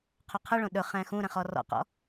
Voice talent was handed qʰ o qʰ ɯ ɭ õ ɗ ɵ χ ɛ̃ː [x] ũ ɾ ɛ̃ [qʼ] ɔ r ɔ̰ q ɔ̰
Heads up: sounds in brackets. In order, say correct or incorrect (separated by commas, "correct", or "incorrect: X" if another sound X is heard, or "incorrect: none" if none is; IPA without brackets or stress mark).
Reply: correct, incorrect: χ